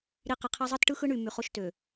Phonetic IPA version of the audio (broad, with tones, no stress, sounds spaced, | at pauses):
ɾ i˨ q e˨ qʰ æ˦ zˤ ɯ˦ t ʈ ɯ˦ x ɯ˦ ɳ y˨ m y˨ χ o˦ ʃ t ø˨